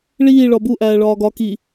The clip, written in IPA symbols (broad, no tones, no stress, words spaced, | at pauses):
ɭiː ɭɒbu ʔæːɭɒːɡɒ ki